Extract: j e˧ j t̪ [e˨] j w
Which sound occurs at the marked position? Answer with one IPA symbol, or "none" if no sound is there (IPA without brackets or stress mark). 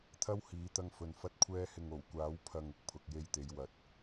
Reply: e˨˧